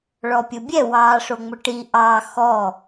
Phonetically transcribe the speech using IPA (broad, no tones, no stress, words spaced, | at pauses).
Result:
ɭɔpʲobʲɛ wɑːʂoŋ͡mʊʈi ʔɑː xɔ